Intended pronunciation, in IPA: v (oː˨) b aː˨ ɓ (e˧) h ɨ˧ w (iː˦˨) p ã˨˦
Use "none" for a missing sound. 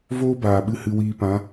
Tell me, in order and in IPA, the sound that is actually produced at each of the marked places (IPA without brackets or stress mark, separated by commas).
oː˦, ɨ˧, iː˧